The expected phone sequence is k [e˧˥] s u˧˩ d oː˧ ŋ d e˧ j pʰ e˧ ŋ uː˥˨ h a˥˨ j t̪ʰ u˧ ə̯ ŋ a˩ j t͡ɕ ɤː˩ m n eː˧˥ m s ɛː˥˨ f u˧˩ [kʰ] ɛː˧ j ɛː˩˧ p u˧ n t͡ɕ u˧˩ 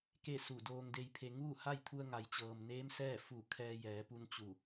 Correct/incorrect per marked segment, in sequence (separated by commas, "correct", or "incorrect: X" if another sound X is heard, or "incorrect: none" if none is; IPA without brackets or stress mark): incorrect: e˥˨, correct